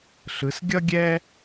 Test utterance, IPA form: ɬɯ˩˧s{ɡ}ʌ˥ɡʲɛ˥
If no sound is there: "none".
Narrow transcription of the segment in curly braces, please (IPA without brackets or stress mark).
ɡʲ